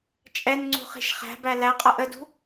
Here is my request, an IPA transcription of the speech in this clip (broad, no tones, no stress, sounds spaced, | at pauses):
t͡ʃʼ ɛ n ŋ͡ǀ ṳ χ i̤ ʃ χ æ̤ b æ l æ qʼ ʌ ʔ ə d ṳ